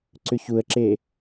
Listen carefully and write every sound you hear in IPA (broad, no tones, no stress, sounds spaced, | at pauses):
ǀ ʏ ç u ə̯ ǁ e